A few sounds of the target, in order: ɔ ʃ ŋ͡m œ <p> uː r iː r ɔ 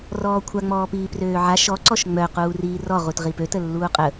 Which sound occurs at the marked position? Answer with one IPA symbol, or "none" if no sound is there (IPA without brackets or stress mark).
q